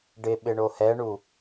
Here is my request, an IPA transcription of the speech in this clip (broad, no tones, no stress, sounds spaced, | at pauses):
ɖ ɪ ɓ ɪ ɳ o h ɛ ɳ u